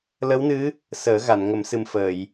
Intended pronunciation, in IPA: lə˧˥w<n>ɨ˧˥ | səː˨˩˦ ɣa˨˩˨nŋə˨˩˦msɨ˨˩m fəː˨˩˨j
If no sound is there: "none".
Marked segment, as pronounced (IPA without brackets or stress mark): n